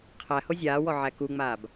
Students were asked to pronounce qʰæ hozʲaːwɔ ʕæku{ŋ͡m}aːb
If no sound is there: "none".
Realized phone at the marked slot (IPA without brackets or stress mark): ŋ͡m